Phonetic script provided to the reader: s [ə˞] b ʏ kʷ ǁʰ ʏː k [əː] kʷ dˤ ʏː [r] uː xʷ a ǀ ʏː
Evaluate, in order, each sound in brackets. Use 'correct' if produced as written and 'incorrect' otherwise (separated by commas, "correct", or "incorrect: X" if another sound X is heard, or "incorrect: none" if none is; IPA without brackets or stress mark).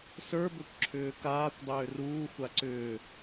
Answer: correct, incorrect: aː, correct